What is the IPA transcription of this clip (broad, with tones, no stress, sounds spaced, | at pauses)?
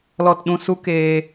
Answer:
l ɔ˨ t ɗ ũ˨ s u˧ k eː˧